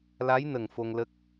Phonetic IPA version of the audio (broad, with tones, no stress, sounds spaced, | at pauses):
l a˧˥ j n ə˨˩ ŋ f o˧ ŋ l ə˦˥ k̚